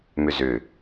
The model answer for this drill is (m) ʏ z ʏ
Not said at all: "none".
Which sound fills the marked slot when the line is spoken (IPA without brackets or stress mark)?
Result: m